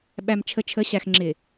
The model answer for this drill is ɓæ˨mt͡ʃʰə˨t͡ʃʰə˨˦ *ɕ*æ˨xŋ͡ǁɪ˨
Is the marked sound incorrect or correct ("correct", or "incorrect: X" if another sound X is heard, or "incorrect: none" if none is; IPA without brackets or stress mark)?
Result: correct